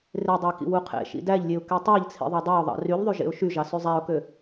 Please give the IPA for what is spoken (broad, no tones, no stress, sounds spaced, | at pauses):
r e dˤ æ k ḭ w u qʰ ḛ ʃ ḭ d æ ʎ lʲ e ʊ̯ k e tˤ æ ʎ t͡sʰ ḭ ðˤ ɑ dˤ æ ʊ̯ ðˤ ɑ̰ r y ʎ ðˤ y ʒ ḛ ʊ̯ ʃ y ʒ ɑ s y zˤ æ ʊ̯ k ø